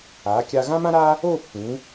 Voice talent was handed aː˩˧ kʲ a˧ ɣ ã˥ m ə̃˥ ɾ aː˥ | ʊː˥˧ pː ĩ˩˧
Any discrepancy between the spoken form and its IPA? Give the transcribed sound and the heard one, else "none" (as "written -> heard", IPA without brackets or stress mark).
ə̃˥ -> ã˥